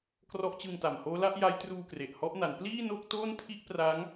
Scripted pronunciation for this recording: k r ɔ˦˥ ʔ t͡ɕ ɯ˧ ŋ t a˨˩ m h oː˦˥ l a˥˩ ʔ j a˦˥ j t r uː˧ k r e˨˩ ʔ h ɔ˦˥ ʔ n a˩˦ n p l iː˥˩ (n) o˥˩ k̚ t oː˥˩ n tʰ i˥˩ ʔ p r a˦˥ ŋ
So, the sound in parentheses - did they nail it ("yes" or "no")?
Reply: yes